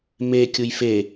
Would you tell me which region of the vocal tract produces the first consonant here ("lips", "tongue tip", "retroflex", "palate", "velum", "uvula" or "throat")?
lips